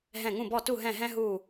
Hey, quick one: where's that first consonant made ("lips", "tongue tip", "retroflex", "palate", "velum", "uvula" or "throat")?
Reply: throat